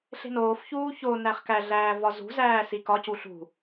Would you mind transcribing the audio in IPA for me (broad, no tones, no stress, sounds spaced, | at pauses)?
ɬ e̤ n oː f ç uː ç o n æ χ k æ ɮ æː v ɒ z ṳ z æː s i k ɒ c u ɬ ṳ